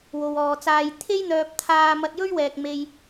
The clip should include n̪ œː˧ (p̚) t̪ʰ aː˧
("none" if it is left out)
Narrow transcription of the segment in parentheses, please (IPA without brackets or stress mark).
p̚